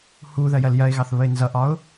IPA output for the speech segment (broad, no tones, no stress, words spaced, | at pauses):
hu ðɜjɜljɜɪ̯ɣɑθ βəɪ̯nzʌʔɒʊ̯